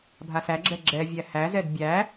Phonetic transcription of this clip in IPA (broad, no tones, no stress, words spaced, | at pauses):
bʱasæɡ͡ǁɛ ɡ͡ǁɛvʲæ hæzɛd bʲæ